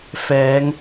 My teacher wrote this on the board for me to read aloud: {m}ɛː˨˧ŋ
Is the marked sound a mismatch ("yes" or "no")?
yes